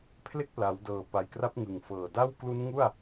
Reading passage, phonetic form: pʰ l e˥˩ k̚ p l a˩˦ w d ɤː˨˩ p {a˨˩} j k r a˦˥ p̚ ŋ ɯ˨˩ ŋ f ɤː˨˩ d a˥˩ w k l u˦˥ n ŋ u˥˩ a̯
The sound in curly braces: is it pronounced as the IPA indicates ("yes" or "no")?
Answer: yes